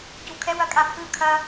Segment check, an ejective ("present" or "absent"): present